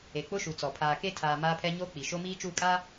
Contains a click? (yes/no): no